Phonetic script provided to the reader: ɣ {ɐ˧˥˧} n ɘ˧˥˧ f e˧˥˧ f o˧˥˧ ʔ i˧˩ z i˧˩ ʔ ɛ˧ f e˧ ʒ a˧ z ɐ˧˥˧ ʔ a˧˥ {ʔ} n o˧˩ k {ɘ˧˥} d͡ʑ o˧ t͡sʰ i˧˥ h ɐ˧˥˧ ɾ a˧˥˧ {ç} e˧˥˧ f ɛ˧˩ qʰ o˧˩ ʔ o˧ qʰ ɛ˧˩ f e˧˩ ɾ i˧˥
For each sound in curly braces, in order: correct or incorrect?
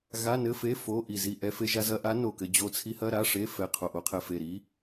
incorrect, incorrect, incorrect, incorrect

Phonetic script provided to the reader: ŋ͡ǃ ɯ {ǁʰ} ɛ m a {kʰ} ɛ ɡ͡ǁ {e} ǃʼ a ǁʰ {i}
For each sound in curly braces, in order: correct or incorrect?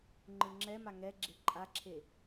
incorrect, incorrect, correct, incorrect

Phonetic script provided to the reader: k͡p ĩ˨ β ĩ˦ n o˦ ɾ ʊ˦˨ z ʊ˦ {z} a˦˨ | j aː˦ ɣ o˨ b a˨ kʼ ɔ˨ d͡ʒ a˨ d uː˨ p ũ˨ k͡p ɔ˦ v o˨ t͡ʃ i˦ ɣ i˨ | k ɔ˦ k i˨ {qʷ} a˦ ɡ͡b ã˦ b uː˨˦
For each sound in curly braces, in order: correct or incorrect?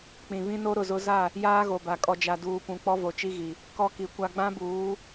correct, incorrect

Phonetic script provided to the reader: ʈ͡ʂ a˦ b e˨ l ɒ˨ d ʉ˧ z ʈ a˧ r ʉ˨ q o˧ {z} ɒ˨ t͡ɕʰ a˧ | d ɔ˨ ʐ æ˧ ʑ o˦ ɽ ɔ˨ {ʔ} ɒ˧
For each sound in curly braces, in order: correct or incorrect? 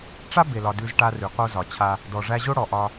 correct, correct

